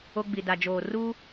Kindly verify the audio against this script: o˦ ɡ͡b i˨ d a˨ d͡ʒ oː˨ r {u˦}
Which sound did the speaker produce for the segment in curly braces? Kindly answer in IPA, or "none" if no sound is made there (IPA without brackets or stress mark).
uː˦